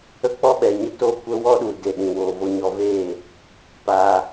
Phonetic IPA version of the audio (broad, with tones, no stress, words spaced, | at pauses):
ə˦k͡pɔ˦ɓɛ˨ɲə˦ to˦˨kʷə˦wɔ˦ɗu˨ de˨ɗĩ˨ woː˨vo˧ɲɔ˧veː˦˨ | paː˧